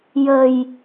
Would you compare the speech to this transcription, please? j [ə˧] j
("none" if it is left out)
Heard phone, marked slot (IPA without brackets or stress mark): ə˨˩